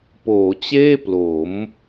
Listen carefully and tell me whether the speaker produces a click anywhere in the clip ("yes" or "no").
no